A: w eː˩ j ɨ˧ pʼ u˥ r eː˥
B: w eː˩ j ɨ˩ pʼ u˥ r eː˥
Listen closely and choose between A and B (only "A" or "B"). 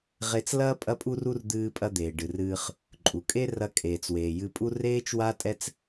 A